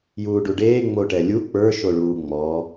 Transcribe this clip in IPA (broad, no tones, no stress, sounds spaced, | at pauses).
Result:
j uː ɖ u ɖ eː ŋ͡m o ʈ ɛ lʲ u k͡p ə˞ ʃ o ɭ uː ŋ͡m ɔː